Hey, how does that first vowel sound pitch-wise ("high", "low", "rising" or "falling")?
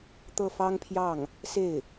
falling